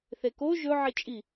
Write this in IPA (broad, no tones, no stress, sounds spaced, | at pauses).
θ e k o ʒ ɵ ʕ i t͡ʃʼ i